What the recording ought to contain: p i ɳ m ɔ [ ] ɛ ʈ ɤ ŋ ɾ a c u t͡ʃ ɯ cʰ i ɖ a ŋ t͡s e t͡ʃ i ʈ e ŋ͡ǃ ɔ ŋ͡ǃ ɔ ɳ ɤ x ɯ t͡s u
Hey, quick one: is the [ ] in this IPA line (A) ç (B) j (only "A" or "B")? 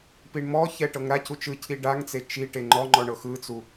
A